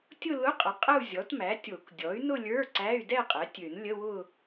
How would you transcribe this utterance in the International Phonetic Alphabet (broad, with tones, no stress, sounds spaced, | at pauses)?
tʲ ʊ˥˧ l ʊ˧˥˧ qʼ ə˩˥ qʼ ə˥˧ u̯ zʲ ɔ˩˥ t m æ˩˥ tʲ o˨˩˦ k dʲ ɔ˩˥ y̯ n ʊ˥˧ lʲ ə˞˧˥˧ ǀ æ˧˥˧ y̯ d ɛ˥˧ qʼ ɛ˩˥ tʲ ø˨˩˦ n lʲ ə˧˥˧ w ʊ˥˧